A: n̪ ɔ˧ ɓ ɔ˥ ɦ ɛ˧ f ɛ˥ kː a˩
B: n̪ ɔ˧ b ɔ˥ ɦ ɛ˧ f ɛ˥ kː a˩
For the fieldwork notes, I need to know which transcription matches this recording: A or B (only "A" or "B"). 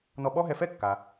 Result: A